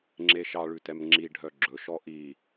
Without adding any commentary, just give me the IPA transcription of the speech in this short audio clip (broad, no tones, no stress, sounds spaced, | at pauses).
ŋ͡ǁ e ʃ ɑ ɭ ʉ t ɛ m ŋ͡ǁ i ɖʱ œ ɡ͡ǁ ɵ ʃ ɔ ʔ i